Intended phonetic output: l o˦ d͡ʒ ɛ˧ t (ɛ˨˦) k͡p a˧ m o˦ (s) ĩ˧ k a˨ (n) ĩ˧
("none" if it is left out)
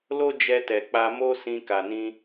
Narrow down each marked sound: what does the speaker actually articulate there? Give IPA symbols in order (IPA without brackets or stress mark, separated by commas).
ɛ˨, s, n